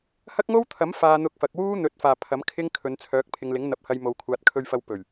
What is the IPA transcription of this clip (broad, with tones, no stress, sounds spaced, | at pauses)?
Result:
h ɐ˥ k̚ ŋ o˥ w t̪ʰ ɐ˨˥ m f aː˧ n̪ ʊ˧ k̚ f ɐ˨ k̚ w uː˥ n̪ ɵ˨ t̚ f aː˨˩ pʰ ɐ˨˥ m kʰ ɪ˥ ŋ kʰ ɵ˨˧ n t͡sʰ œː˨˥ k̚ pʰ ɪ˨ ŋ l ɪ˨˥ ŋ n̪ ɐ˨˥ p̚ h ɐ˧ j m o˨ w kʷʰ aː˨ t̚ kʰ ɵ˧ ɥ f ɐ˧ w p ɵ˨˩ ɥ